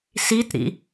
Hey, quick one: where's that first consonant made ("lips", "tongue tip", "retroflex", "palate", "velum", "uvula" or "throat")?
tongue tip